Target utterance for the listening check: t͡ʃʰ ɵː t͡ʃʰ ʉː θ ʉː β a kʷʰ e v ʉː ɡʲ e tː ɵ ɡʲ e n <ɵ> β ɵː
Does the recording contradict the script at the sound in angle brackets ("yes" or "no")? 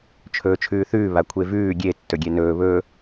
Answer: yes